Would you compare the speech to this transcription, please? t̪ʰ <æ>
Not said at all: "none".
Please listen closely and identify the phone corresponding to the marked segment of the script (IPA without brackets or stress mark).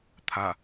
a